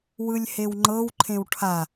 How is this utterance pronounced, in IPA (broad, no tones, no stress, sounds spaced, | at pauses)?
w ɯ lʲ h e w ŋ͡ǃ ɤ w ǃʰ ẽ w ʈʰ a